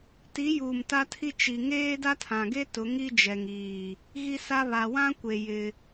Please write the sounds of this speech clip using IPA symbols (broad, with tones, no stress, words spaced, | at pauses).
ti˨˦juː˨m ta˦tʰi˦ t͡ʃi˨ ŋeː˦da˦tʰã˨ɡe˦ tʊ˨˦ŋi˦d͡ʒɛ˨ŋiː˨ | ɣi˦sa˦ βa˨wã˦kʷe˨ jɪ˦